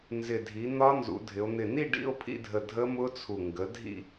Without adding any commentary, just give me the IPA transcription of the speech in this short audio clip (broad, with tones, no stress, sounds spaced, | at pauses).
n z ɪ˧˩ dʱ i˩˥ n̪ ɒ˦˥ n z ṵ˩˧ dʱ ɪ˩˧ o̯ n̪ ɪ˧˩ n i˥˨ ɖ ḭ˥˨ o̯ pʰ ḭ˥˨ dʱ ə˧˩ dʱ ə˦˥ m ʊ˦˥ t͡sʰ u˧˩ ŋ ɡ ə˩˥ dʱ ḭ˥˨